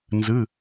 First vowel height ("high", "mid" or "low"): high